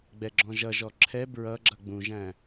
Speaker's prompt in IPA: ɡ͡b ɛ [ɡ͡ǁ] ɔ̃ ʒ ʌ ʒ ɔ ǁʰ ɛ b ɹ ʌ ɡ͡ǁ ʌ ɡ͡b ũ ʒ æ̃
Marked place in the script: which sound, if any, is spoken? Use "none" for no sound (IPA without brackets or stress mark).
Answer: ɡ͡ǁ